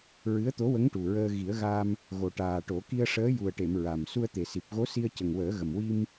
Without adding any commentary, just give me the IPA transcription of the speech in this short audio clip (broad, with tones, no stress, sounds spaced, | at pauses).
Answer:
ɹ ɨ˧˥ ə̯ t̪ o˧˥ w ə˧˥ ŋ ʈ u˨˩ ɹ əː˧ ɣ i˨˩˦ ə̯ ɣ a˧ m | ɣ o˨˩ ʈ aː˨˩ ʈ o˨˩˦ k i˧ ə̯ ʂ əː˧˥ j u˨˩ ə̯ ʈ e˨˩˨ m ɹ a˨˩ m s u˧ ə̯ t̪ e˨˩ s i˨˩ p̚ ɣ o˧˥ s i˧ ə̯ c ə˨˩ ŋ w əː˨˩˦ ɣ ə˨˩ m w i˧ m